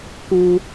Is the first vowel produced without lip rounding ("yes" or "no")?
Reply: no